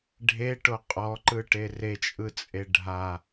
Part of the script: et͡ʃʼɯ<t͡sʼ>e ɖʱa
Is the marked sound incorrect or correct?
correct